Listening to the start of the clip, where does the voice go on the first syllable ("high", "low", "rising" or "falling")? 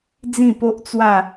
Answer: falling